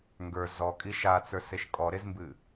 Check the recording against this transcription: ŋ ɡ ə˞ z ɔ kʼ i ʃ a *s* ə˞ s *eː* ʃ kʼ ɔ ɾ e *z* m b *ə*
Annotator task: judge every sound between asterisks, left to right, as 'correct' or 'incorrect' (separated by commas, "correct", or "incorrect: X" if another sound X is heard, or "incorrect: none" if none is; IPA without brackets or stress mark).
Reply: incorrect: t͡s, incorrect: e, correct, incorrect: ɨ